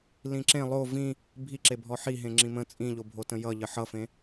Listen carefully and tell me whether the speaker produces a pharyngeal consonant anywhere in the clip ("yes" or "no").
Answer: yes